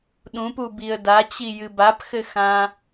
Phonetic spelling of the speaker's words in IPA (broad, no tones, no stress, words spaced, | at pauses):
ɗũpubiə̯ dat͡ɕijɨ bapxɘxã